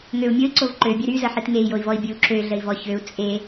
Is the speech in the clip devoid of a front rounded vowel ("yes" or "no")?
no